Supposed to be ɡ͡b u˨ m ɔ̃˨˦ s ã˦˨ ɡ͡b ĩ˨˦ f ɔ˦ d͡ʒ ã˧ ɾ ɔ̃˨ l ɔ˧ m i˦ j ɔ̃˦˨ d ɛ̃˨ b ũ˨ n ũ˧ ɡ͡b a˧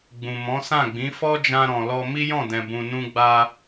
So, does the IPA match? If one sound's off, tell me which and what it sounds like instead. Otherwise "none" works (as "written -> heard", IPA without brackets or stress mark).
u˨ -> ũ˨